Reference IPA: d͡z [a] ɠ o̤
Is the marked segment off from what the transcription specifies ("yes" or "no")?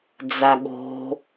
no